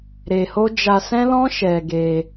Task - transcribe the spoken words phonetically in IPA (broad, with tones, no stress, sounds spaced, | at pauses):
ɾ e˧ h o˦ d͡ʒ a˧ s ɛ̃˦ l ɔ̃˦ ʃ ɛ˧ ɡ e˧